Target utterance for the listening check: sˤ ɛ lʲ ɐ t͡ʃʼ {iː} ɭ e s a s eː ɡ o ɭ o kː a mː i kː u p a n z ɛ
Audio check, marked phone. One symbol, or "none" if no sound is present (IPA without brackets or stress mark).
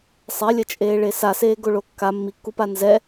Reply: eː